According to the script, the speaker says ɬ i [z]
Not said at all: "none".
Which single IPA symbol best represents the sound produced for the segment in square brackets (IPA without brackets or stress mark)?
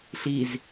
z